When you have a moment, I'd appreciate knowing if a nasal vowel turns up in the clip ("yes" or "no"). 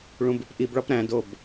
yes